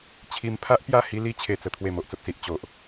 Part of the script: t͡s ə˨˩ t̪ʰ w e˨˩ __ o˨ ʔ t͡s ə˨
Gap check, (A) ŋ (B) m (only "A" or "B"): B